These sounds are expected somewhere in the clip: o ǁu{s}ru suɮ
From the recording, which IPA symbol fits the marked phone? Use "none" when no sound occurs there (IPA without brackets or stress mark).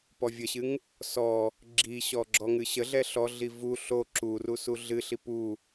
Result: none